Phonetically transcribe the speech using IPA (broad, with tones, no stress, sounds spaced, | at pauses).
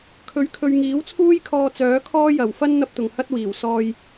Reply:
kʰ ɵ˨˥ ɥ kʰ ɵ˨ ɥ ŋ iː˨˥ w t͡sʰ uː˥ j kʰ ɔː˧ t͡s œː˨˥ kʰ ɔː˥ j ɐ˨˩ w f ɐ˥ n n̪ ɐ˥ p̚ t̪ ʊ˨ ŋ h ɐ˥ t̚ w iː˨˩ w s ɔː˧ j